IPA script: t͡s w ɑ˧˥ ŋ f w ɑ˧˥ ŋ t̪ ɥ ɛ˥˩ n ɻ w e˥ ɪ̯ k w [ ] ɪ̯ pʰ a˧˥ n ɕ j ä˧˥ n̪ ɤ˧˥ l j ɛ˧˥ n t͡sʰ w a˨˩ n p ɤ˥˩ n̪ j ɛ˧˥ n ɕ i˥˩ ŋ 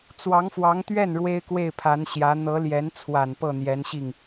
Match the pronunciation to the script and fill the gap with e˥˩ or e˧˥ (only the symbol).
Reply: e˥˩